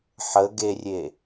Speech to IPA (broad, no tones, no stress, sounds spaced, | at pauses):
ħ ə ɡ e rʲ e